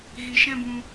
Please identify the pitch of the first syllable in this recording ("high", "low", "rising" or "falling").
low